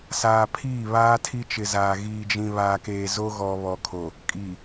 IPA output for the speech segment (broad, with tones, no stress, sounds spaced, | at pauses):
s aː˨ pʰ iː˦˨ β aː˦ tʰ i˦ t͡ʃ ɪ˨ z aː˨ ɣ iː˨ d͡ʒ ĩ˨ β aː˨ k eː˨ z o˦ ɣ ɔ˨ β ɔ˨ kʰ o˨ | kʼ i˨